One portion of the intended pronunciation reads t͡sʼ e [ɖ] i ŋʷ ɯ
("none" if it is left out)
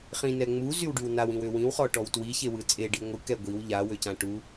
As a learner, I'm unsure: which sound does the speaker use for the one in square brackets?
ɖ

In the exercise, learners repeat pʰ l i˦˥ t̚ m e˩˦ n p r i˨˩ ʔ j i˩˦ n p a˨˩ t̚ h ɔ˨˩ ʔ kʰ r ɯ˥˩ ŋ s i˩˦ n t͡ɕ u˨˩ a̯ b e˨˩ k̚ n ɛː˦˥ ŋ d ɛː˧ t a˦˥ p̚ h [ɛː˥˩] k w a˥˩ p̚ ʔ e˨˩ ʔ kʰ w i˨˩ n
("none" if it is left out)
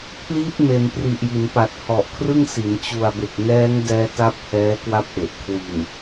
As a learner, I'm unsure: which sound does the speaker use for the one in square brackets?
ɛː˦˥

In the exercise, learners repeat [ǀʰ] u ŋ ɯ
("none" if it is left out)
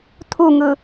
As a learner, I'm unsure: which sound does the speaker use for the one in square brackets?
tʰ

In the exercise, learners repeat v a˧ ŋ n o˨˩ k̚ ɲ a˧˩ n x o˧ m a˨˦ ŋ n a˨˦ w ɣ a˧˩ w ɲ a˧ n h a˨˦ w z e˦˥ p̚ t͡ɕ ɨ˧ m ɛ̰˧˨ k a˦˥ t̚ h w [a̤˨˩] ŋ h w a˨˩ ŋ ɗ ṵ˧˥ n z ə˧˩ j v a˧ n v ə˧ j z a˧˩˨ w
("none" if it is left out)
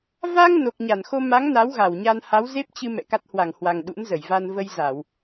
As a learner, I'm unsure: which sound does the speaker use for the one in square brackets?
a˧˩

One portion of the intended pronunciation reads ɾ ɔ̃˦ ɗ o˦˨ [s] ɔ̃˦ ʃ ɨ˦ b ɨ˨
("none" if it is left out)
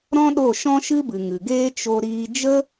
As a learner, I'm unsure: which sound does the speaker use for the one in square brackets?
ʃ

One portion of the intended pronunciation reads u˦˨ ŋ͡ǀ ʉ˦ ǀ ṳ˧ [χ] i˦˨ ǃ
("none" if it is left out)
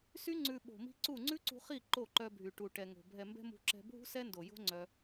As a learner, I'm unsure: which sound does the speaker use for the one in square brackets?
χ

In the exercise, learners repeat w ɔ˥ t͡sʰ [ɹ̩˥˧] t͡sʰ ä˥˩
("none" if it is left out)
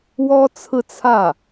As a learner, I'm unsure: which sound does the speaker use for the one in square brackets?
ɹ̩˥˧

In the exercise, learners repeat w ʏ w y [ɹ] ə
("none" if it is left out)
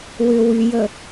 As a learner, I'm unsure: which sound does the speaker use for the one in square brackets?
j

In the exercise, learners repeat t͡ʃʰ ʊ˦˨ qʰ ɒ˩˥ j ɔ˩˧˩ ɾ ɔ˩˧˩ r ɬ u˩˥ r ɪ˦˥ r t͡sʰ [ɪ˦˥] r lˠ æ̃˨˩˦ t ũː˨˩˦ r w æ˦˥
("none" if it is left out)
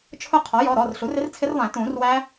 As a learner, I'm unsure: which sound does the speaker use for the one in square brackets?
ɪ˦˥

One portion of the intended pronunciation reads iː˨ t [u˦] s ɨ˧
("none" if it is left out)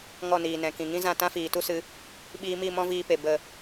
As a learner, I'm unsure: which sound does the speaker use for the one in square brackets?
u˦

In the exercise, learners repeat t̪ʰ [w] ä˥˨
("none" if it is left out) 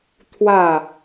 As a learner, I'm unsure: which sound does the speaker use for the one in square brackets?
w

